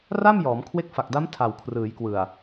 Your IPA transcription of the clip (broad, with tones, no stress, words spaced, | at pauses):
ra˥˩mjɔː˩˦m kʰwe˦˥k̚fa˨˩k̚da˦˥m tʰa˨˩wkʰrɯː˩˦jkwɯ˨˩a̯